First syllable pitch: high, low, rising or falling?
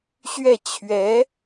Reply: falling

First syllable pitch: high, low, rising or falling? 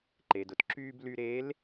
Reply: low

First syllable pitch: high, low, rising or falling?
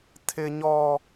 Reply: high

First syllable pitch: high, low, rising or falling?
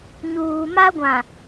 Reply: low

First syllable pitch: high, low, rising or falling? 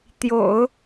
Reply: low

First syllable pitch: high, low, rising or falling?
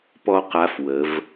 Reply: high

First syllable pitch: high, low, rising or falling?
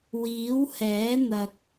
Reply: rising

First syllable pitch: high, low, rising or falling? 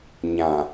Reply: low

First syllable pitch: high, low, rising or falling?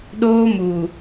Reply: high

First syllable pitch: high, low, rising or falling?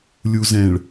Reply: low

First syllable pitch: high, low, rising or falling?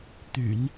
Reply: low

